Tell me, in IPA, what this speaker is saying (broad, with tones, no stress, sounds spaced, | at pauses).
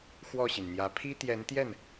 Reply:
x w ɔ˥˩ ɕ i˩ n n̪ j ä˧˥ pʰ i˥ t̪ j ɛ˧˥ n t̪ j ɛ˥˩ n